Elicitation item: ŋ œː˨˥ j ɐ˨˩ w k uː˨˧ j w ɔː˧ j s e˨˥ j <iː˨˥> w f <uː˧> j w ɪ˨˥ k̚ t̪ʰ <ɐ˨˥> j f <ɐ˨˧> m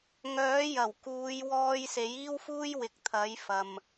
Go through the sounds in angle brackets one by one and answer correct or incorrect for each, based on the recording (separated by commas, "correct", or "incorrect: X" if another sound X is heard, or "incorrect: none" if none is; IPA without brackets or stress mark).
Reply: incorrect: iː˥, incorrect: uː˥, correct, incorrect: ɐ˨